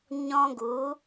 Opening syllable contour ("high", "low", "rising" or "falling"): high